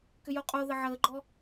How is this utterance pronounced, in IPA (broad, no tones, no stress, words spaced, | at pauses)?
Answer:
kʏjoqʼo ðəʕəːɡ͡ǃɔ